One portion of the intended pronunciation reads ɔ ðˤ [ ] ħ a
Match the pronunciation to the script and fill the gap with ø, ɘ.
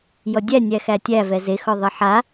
ɘ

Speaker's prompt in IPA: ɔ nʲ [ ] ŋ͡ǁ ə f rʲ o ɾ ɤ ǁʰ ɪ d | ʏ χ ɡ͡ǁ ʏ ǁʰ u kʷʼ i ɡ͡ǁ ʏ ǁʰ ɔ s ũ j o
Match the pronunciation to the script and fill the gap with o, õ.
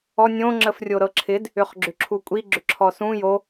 õ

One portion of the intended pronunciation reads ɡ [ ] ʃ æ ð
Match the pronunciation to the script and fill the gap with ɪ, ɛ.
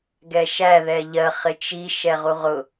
ɛ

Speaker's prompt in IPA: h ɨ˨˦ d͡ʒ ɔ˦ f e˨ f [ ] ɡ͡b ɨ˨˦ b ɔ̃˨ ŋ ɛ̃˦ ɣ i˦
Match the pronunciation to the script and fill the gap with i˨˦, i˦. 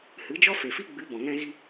i˦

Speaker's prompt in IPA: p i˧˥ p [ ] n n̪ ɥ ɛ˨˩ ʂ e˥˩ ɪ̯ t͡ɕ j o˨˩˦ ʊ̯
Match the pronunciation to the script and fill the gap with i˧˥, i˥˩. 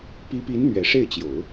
i˧˥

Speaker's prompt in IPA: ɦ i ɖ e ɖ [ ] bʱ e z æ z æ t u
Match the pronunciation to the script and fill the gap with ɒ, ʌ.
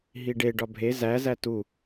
ɒ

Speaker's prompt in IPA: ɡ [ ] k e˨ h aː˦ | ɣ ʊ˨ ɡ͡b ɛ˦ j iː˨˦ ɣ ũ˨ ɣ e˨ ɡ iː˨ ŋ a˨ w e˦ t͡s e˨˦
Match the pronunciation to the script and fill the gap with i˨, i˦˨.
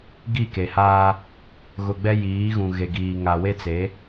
i˦˨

